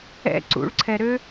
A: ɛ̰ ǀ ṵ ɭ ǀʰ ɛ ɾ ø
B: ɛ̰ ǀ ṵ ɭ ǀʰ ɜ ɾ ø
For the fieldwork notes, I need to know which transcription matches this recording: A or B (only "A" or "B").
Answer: A